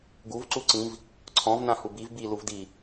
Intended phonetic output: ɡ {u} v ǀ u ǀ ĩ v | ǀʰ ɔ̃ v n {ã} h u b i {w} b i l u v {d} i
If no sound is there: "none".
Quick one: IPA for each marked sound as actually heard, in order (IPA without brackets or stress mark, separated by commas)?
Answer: u, ã, v, d